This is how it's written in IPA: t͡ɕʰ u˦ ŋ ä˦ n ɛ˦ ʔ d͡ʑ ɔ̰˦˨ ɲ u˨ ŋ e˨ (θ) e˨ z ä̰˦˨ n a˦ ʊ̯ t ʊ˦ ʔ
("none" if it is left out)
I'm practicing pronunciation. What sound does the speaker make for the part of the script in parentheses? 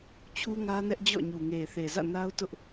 θ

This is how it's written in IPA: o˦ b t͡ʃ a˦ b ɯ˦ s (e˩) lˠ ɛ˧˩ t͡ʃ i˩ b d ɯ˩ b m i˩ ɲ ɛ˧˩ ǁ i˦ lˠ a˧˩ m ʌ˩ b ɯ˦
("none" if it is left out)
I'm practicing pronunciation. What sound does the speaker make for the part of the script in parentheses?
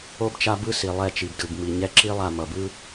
i˩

